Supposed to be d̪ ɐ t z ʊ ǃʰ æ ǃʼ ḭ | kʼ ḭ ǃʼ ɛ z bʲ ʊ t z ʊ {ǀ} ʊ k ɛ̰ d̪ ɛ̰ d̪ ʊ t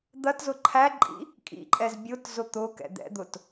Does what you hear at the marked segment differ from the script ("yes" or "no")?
yes